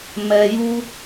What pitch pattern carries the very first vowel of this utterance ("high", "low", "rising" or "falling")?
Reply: high